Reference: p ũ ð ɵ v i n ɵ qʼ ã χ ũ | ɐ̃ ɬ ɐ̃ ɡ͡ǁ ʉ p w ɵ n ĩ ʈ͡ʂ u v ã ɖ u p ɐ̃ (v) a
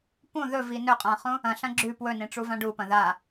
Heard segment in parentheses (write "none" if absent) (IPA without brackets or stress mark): ð